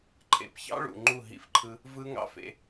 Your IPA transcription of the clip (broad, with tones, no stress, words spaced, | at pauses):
ǃʰḛ˨pçɑ̰˦ɭṵ˨ ŋ͡ǃu˦˨ɦḭ˦fǃʰɯ˦ | vɯ˦ ŋɑ̰˦fḛ˦